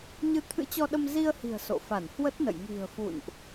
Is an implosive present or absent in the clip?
present